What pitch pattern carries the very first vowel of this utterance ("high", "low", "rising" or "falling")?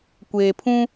low